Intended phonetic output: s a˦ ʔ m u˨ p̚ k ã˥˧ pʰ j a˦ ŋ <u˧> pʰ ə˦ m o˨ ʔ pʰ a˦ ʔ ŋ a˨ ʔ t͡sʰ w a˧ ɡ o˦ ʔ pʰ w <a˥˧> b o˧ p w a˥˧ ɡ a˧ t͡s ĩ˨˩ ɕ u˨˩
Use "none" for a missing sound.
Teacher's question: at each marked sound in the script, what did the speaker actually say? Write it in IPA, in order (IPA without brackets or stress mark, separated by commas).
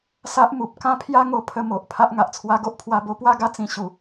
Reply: o˧, a˧